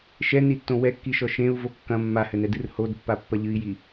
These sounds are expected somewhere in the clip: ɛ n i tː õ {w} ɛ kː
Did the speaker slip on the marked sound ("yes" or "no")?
no